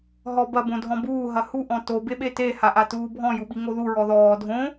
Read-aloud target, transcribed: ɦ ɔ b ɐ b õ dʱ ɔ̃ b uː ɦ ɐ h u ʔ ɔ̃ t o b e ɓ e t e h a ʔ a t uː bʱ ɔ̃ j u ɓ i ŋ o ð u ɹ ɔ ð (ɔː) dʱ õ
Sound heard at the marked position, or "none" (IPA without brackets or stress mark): ɔː